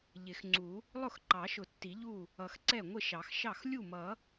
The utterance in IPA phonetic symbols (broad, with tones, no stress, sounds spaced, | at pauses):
ʎ ɪ˨˩˦ x ŋ͡ǀ u˨˩˦ | lˠ ʊ˥˩ x ǃ ɑ˨˩˦ ʃ ʊ˨˩˦ tː i˨˩˦ ʎ u˥˩ | ʌ˨˩˦ x ǀ ɛ˥˩ ŋʷ ɪ˥˩ ʃ ɑ˨˩˦ x ʃ ɑ˥˩ x lʲ u˥˩ m ʌ˨˩˦